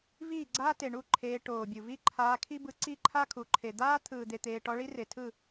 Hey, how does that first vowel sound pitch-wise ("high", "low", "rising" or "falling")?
falling